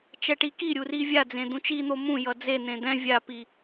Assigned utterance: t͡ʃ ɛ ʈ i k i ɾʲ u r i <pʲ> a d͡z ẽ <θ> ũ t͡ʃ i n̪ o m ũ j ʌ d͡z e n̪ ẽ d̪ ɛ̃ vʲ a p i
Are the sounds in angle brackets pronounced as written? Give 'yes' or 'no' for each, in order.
no, no

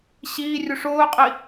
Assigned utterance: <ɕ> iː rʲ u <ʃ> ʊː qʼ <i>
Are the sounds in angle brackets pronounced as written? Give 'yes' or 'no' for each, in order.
yes, no, yes

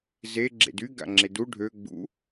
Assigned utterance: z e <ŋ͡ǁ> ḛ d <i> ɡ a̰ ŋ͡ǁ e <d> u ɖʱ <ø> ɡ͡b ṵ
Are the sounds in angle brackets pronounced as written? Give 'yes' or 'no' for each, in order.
no, no, yes, yes

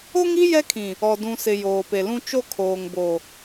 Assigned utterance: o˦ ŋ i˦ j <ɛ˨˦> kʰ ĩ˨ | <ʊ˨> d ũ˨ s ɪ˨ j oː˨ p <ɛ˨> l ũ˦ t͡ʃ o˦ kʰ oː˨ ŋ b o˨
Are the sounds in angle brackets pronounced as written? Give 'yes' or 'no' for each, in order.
no, no, no

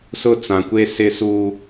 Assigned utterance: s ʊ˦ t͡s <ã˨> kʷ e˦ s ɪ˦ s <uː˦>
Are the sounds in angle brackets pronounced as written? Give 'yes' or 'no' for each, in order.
yes, yes

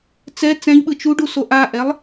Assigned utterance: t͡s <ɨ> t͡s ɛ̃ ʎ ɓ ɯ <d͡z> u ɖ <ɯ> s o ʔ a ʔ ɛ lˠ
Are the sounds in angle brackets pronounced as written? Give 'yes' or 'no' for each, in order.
no, no, no

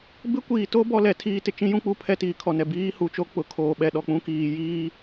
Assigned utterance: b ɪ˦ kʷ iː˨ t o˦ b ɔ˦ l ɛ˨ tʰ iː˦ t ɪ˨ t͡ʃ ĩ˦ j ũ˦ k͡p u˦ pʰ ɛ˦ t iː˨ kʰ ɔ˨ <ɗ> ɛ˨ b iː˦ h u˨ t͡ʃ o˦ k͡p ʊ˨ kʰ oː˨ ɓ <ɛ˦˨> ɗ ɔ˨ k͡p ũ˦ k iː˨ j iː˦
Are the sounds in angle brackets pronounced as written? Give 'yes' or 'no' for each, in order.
no, no

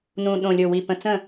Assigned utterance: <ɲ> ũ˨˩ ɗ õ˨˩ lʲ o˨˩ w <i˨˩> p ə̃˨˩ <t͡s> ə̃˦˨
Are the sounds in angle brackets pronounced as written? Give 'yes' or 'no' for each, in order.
no, yes, yes

